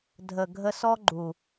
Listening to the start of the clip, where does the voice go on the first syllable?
low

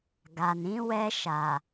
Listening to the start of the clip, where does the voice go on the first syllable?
low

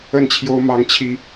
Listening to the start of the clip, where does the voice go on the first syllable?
falling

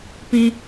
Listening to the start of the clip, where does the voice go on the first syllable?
high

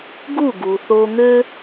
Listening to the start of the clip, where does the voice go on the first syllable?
falling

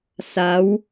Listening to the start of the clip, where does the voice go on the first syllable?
rising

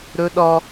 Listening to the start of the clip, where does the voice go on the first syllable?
high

